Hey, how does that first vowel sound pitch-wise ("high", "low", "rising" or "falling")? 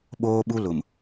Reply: high